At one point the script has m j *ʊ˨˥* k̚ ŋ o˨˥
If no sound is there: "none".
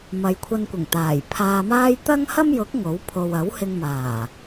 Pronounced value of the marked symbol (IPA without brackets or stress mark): ʊ˨˥